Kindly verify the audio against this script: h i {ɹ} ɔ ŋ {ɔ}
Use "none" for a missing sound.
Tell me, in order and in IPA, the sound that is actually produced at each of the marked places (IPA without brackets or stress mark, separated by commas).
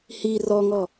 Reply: r, ɔ